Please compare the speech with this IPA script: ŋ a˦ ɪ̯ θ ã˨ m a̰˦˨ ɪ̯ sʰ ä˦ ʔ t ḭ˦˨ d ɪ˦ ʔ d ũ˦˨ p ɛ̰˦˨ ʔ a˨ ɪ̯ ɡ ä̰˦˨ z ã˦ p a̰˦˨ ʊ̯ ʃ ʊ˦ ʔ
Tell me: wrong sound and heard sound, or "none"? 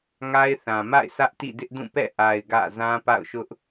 none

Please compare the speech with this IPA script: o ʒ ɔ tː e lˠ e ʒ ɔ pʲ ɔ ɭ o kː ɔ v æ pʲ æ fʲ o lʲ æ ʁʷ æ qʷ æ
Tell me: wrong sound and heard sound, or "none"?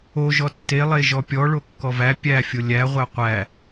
none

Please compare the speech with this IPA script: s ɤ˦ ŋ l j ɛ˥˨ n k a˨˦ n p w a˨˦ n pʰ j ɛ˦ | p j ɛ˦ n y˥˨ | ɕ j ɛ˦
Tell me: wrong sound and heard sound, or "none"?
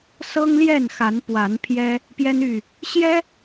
k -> x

